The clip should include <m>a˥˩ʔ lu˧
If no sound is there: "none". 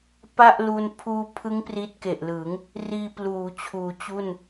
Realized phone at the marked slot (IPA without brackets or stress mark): p